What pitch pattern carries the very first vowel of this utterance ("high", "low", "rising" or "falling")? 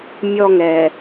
high